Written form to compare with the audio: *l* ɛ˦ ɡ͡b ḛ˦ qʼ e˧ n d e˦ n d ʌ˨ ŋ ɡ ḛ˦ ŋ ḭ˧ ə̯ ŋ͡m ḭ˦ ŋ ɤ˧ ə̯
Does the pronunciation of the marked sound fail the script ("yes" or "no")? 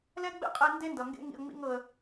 no